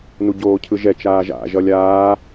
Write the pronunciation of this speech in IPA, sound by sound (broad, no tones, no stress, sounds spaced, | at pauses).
n u ɟ oː cʰ ɯ ʒ ɛ t͡ʃ aː ʒ a̰ ʒ ʌ lʲ aː